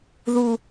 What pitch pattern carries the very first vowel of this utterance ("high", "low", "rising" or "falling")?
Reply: high